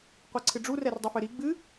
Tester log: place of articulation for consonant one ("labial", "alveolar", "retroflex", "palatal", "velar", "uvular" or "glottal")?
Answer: uvular